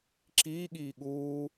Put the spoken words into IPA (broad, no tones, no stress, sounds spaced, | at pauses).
ǁ iː ɠ iː ɠ uː